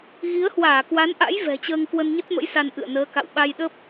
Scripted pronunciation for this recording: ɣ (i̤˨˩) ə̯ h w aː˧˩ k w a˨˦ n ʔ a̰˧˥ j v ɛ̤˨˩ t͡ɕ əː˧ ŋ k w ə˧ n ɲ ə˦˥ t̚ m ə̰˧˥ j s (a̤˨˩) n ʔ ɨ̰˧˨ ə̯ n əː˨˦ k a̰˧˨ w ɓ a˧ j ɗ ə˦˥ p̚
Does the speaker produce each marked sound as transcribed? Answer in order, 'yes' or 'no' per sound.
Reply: no, no

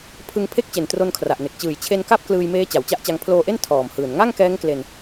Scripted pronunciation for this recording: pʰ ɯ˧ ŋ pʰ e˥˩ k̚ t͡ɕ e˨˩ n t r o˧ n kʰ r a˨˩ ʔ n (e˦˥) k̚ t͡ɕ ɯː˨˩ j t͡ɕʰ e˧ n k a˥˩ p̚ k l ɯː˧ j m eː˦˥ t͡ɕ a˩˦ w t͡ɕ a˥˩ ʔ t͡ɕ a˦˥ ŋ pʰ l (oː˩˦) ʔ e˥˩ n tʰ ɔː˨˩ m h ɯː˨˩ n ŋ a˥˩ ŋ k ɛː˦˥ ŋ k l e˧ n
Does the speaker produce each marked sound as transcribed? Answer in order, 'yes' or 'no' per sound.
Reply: no, no

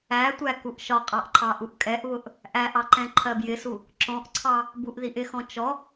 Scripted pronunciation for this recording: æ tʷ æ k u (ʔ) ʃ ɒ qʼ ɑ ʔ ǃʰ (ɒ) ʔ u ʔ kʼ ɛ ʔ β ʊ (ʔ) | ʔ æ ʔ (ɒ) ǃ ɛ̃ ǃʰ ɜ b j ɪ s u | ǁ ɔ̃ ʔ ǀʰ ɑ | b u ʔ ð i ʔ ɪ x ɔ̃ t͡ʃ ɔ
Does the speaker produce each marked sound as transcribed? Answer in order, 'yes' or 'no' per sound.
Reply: yes, no, yes, no

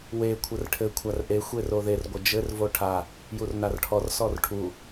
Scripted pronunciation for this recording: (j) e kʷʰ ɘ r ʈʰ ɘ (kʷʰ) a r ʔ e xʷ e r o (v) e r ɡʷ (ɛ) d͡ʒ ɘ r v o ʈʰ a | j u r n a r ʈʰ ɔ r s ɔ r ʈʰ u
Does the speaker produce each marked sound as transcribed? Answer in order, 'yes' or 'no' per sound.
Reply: no, yes, no, no

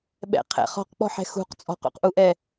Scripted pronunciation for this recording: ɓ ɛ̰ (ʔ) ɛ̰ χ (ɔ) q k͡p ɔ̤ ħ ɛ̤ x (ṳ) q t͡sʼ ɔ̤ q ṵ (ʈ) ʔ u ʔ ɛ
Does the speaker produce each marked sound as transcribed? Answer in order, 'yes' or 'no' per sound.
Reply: no, no, yes, no

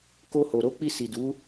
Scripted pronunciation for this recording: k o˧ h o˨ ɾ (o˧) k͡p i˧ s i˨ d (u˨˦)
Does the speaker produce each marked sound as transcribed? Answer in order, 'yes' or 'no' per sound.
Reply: yes, yes

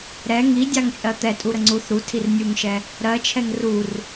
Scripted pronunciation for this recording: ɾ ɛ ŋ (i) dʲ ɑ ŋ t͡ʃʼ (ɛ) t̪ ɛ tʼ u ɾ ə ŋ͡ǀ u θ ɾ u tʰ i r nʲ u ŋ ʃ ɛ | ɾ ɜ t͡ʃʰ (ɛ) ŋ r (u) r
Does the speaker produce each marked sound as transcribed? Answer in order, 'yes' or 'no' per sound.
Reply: yes, no, yes, yes

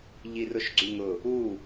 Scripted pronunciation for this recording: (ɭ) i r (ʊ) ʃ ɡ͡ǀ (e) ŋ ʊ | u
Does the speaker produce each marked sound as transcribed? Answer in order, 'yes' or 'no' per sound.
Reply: no, yes, no

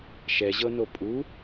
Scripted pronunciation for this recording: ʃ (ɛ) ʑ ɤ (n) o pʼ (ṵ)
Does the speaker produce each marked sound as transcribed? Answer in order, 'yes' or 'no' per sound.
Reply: yes, yes, no

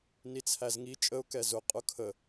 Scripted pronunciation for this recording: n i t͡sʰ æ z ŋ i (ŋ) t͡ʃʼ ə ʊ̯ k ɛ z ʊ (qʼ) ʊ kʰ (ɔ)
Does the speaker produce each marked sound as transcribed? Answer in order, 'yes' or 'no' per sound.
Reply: no, yes, no

